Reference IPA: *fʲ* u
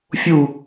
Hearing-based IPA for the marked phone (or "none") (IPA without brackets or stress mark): fʲ